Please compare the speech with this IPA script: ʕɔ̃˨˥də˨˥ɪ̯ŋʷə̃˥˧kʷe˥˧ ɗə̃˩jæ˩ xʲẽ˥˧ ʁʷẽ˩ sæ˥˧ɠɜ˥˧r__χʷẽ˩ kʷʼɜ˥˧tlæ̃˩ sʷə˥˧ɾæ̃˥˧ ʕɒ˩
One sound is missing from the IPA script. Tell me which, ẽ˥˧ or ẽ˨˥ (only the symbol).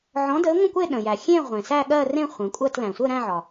ẽ˥˧